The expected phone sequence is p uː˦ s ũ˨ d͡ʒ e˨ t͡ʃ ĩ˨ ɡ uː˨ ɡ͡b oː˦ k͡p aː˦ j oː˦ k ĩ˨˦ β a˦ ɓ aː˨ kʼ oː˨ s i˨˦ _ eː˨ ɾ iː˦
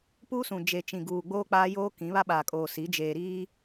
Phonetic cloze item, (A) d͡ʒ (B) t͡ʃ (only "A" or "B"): A